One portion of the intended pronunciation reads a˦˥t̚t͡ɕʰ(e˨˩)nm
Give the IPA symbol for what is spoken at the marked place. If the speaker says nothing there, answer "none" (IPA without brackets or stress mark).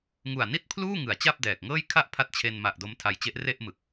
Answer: e˧